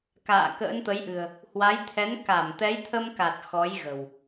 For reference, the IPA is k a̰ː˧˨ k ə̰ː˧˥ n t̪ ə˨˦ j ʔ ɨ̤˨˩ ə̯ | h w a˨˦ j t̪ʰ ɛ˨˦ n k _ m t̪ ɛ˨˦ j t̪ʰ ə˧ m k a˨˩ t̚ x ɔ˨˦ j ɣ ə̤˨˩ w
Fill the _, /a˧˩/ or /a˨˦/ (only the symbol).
a˧˩